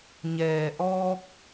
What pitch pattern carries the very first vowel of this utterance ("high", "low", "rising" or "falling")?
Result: low